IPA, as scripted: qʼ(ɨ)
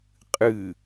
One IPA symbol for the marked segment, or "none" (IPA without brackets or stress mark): ɨ